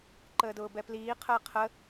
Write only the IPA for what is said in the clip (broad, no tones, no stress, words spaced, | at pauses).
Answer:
ǃəːdʊːbɛpliː qʰəːqʰə